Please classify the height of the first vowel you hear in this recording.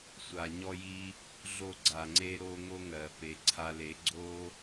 low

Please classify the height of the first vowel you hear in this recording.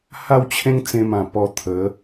low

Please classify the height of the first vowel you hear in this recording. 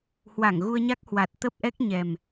low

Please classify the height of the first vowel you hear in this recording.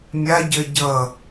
low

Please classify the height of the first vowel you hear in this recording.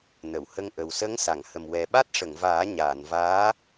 mid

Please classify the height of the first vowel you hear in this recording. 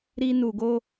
high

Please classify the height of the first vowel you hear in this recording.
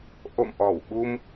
mid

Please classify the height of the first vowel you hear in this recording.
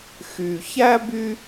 high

